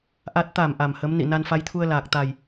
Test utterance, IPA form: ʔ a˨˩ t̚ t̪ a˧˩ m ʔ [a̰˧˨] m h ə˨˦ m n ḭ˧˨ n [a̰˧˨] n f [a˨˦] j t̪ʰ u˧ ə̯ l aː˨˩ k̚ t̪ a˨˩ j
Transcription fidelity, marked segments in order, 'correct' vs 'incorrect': incorrect, incorrect, correct

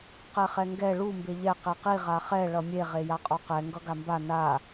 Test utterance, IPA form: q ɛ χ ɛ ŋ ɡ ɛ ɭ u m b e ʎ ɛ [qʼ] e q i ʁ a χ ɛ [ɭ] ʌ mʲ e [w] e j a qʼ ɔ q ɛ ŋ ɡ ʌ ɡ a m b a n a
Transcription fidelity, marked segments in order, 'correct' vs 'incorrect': incorrect, correct, incorrect

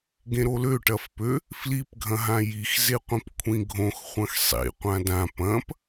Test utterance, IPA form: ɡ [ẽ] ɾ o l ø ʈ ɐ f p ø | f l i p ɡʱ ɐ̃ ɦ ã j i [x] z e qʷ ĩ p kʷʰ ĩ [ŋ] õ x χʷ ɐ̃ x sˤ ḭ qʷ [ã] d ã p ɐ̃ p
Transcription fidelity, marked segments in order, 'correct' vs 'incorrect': correct, correct, incorrect, correct

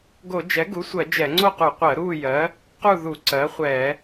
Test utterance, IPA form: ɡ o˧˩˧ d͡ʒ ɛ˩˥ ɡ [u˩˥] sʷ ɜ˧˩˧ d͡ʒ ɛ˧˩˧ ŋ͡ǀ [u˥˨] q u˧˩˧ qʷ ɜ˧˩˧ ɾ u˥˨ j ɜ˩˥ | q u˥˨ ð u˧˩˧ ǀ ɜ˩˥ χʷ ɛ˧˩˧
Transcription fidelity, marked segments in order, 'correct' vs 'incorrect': correct, incorrect

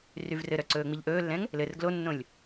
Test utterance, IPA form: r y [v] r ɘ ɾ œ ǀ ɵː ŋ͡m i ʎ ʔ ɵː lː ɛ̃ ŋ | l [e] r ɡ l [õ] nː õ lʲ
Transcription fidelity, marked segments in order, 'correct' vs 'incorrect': correct, incorrect, incorrect

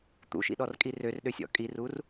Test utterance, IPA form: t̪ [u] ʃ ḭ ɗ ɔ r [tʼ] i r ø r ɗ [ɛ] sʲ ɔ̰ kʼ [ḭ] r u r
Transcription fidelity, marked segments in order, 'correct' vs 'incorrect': incorrect, incorrect, incorrect, incorrect

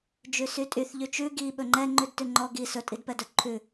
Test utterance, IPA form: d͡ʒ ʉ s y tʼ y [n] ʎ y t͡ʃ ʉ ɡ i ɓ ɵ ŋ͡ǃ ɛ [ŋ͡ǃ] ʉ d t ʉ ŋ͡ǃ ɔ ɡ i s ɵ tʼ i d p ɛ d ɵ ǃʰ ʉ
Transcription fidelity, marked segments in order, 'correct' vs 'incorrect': incorrect, correct

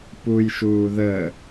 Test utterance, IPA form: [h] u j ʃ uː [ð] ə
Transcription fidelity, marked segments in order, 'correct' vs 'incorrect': incorrect, correct

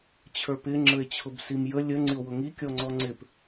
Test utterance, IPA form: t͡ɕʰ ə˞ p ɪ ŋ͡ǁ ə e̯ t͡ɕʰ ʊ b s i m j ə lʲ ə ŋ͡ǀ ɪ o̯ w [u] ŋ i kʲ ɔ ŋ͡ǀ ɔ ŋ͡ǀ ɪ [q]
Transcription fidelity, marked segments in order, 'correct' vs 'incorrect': incorrect, incorrect

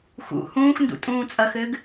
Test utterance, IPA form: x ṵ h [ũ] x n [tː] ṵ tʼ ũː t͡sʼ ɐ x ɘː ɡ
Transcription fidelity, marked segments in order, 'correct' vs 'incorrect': incorrect, incorrect

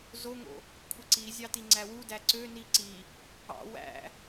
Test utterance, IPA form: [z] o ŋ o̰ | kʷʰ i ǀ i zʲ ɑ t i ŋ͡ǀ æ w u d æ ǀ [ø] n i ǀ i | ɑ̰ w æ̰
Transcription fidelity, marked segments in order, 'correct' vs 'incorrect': correct, correct

